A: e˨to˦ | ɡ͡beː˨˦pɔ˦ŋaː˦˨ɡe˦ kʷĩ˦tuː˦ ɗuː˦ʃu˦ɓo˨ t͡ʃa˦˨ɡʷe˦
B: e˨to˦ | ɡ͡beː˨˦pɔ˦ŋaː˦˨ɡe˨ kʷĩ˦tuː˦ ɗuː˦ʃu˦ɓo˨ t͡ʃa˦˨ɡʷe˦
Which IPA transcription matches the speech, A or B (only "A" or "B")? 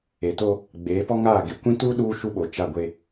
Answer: B